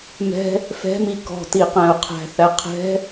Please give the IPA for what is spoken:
m ɛ̤ | f ɛ̤ m i k ɔ̤ t i q æ̃ ʊ̯ qʰ æ̤ θ æ qʰ ɛ̤

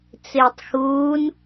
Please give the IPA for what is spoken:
t͡s ɪː tˤ x uː n

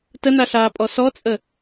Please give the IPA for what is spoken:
t ə n a ɬ aː pʼ ɔ s ɔ t͡sʼ ə

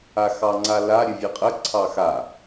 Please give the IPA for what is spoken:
a x ɑ ŋ͡ǀ a l a ɾʲ ɨ vʲ e qʼ ə ǀʰ ɑ x a

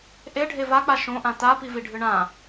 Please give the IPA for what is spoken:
ʔ e ɖʱ e v a k͡p a ʃ õ ʔ ã t a p i v i ɖʱ ɨ ɳ ã

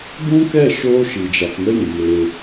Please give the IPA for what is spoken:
b ũ˦ k ɛ˦˨ ʃ oː˦ ʃ i˨ d͡ʒ a˧ t n ə˦ j ĩ˨ m eː˧

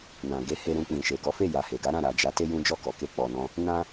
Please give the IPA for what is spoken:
n ã˨ ɡ e˨˦ h e˧ ɾ ũ˧ k͡p ĩ˨ ʃ e˨ ɡ ɔ˨˦ f e˦˨ j a˨ h e˨ ɡ a˨˦ ɾ ã˦˨ ɾ a˨ d͡ʒ a˨˦ t e˦ j ũ˦ d͡ʒ ɔ˦˨ k ɔ˨ k e˧ k͡p ɔ˨ n ɔ̃˧ | n ã˦

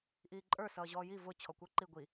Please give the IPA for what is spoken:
ʔ iː ǃʼ ə˞ s ʌː ʑ ɔː j i v ʊ t͡ɕʰ ɔ kʷ ə˞ ǃ i ɡʷ i

